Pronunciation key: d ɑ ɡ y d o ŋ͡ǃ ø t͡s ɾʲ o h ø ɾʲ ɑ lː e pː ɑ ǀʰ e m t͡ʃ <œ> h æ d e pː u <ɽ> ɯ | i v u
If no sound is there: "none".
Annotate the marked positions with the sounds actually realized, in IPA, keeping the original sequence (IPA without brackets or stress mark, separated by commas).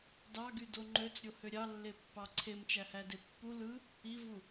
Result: æ, l